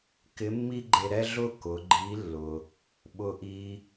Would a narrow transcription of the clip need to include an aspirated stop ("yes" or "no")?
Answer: no